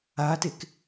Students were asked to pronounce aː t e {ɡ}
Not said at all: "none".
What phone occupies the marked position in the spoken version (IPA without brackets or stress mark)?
k